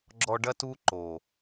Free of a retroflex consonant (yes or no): no